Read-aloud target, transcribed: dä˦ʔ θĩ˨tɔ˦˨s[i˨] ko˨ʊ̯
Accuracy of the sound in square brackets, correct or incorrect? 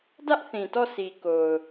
correct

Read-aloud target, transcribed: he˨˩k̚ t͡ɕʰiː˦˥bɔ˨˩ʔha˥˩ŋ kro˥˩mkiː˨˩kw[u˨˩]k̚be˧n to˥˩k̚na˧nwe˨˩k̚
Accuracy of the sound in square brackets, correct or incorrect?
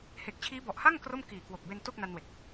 incorrect: o˨˩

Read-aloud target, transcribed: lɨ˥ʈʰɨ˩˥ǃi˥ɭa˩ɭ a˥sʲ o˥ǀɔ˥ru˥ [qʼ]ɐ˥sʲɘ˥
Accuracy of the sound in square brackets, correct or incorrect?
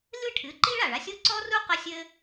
incorrect: q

